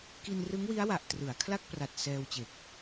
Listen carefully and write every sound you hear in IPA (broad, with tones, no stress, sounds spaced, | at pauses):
k i˧ n r ɯ˦˥ ŋ w i˦˥ a̯ w a˨˩ ʔ t r ɯ˩˦ a̯ kʰ l a˥˩ k̚ p r a˨˩ t̚ s ɛː˧ w t͡ɕ e˨˩ k̚